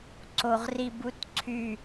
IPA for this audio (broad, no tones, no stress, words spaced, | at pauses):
ǀoʁributǀʰy